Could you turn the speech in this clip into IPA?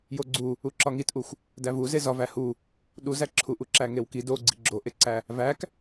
j o ɡ͡ǀ u | u ǁ ɒ ŋ i t ʔ u xʷ | d æ v u z e z ɒ v æ h u | ɗ u z æ ǁʰ u ʔ u ǁ æ ŋ e w k i d o ɡ͡ǀ i ɡ͡ǁ o ʔ e ǀ æ | v æ k

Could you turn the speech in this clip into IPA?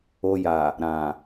o˧ j a˨ | ɾ ã˨

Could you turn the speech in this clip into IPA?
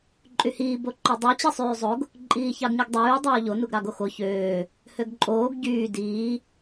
ǃʼ y h iː b o ǃ o dˤ u t͡ɕ i sˤ yː zˤ o ɡ | ǃʼ iː ç ɑ ɡ ɲ u ɡ dˤ yː dˤ oː ʎ o n u ɡ ɾ ɑ ɡ o x o ç øː | h ø ɡ ǃʼ oː ɡ ɟ yː d iː

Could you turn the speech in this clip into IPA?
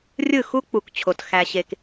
rʲ ɯ˦˨ x u˦ k͡p u˨ k t͡ɕʰ o˨ t x æ˧ ɕ e˧ k

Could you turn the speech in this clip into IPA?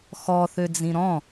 x ɔ θ ø d͡z ĩ ɾ ɔ̃

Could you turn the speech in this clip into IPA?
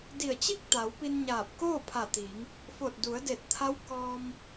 d i˧˩ ə̯ t͡ɕ i˥˨ k̚ t̪ a˩˧ w p i˧ n ɲ aː˧˩ p̚ k oː˥˨ pʰ a˧˩ t̪ iː˩˧ ŋ | f o˧˩ t̚ d u˩˧ ə̯ d e˧˩ t̚ t̪ʰ a˧˥ w k ɔː˧ m

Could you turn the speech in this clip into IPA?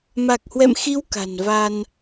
m a˨˩ k̚ h w ɛ̰˧˨ m x i˨˦ w k a̤˨˩ n v a˧ n

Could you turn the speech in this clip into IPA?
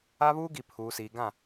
a˦ β uː˦ ɡ i˨ pʰ uː˨ s iː˨ ɡ ã˦˨

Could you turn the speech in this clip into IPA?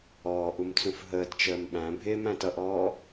ɔː ʔ u m t͡s ũ f ɦ əː t t͡ʃ əː m ɓ æ̃ bʱ ɪː m æ̃ t ʌ ʔ ɔː

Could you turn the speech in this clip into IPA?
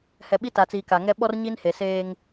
h ɛ˨ ɓ i˦ t a˨ t͡s iː˨ k a˨ ŋ ɛ˦ ɓ ɔ˦ r ɲ i˦ n h e˨ s eː˦ ŋ

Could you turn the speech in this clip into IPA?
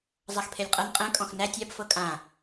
zˤ a x pʰ e lʲ qʼ ɤ n qʼ ɛ̃ kʼ ɔ̃ x n æ tʲ a b f ɤ kʼ ã

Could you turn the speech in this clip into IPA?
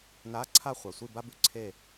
n a˧˥˧ ǀʰ a˥˨ χʷ a˨ sʷ i˥˨ b a˥ b ʉ˨ ǀʰ e˥˨

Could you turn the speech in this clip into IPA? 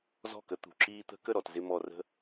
z ɔ̤˦˨ k ə˧ t̪ ṳ˨ ǁ iː˧ t̪ ə̤˧ k ə˦˨ ɾ ɔ˨ t z ɪ˧ m ɔ˨ r ə̤˧

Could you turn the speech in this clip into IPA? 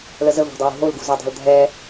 l ə z ə v a̤ dˤ ə w ṳ ɦ o l ɡ ṳ z ø dˤ a̤ l dʱ ɛ

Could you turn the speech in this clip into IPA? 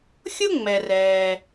xʲ ʊ˥ ŋ͡m ɛ˩ r ɛː˩

